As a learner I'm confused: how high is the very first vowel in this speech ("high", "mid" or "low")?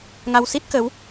low